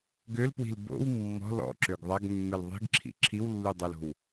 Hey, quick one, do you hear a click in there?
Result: yes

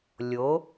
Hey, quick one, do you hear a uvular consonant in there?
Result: no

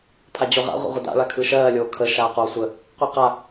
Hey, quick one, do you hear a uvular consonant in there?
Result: yes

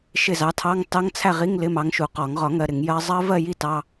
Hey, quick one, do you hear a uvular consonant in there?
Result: yes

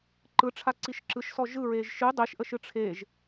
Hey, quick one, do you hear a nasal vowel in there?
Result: no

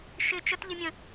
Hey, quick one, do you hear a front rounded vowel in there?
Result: no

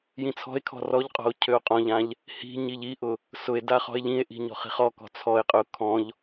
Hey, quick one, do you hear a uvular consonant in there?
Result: yes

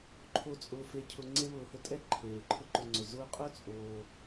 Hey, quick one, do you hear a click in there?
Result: yes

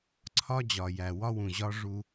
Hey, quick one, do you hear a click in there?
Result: yes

